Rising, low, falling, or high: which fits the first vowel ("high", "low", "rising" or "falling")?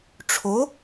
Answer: rising